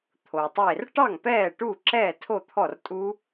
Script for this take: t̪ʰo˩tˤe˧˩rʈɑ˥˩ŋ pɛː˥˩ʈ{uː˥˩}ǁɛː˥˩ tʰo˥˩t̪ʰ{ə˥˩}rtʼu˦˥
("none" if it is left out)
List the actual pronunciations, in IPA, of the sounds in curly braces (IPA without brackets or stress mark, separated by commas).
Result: uː˥˩, ɔ˥˩